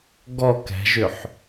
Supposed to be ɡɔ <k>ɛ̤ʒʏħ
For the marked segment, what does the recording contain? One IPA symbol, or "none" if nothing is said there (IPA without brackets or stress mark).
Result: k